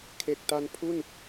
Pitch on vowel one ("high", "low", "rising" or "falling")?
low